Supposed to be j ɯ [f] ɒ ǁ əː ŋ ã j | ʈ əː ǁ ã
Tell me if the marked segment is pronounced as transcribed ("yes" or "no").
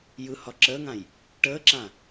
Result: no